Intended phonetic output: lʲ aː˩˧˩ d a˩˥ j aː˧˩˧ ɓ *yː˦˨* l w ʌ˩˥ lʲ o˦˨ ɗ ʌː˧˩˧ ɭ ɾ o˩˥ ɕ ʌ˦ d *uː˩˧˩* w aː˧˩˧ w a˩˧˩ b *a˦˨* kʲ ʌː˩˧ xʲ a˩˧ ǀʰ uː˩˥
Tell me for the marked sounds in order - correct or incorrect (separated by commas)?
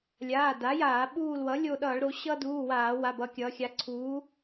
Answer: incorrect, correct, incorrect